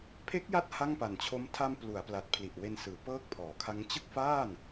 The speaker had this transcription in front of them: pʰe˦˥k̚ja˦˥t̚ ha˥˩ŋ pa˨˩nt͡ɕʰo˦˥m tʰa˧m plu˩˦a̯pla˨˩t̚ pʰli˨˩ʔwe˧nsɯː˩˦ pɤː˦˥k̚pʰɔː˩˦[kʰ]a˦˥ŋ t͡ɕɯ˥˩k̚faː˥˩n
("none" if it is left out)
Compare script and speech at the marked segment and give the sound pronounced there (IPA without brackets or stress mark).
kʰ